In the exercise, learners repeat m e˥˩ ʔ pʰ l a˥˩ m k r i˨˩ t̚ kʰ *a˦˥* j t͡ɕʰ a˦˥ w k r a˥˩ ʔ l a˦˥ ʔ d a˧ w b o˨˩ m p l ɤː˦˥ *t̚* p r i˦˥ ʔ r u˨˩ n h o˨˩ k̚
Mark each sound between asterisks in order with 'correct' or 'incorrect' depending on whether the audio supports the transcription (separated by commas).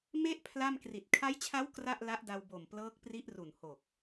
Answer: correct, incorrect